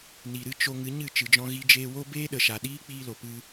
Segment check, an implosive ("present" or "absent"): present